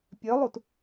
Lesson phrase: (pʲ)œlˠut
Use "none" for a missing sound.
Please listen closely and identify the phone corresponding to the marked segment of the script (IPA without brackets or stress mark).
pʲ